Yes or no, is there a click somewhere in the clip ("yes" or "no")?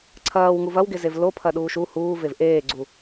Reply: yes